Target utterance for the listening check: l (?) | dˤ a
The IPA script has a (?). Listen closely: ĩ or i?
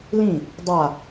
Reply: ĩ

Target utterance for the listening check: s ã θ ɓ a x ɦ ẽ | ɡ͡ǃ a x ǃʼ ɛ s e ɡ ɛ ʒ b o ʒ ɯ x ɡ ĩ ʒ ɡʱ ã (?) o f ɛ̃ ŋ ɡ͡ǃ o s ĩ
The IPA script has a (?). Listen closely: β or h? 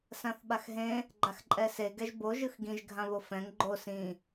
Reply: β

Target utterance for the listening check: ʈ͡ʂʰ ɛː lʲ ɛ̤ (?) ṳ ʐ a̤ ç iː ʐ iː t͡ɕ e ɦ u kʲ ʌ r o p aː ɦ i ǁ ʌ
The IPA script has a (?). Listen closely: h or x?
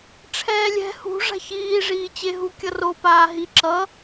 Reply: h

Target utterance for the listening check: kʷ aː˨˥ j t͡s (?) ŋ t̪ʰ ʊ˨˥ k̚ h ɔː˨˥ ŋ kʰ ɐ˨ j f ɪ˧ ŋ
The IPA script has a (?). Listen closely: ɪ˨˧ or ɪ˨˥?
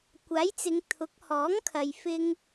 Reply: ɪ˨˧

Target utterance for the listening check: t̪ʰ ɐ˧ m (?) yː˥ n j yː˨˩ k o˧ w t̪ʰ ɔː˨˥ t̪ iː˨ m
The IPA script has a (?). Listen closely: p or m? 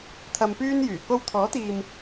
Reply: p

